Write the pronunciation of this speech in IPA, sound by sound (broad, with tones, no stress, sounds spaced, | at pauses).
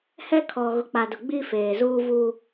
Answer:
h ɛ˦ kʰ ɔ˨ ɣ ʊ˨ k͡p a˨ d ʊ˨ ɡ͡b i˦ f eː˨ z uː˦ v u˦